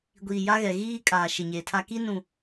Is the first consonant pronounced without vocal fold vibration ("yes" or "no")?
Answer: no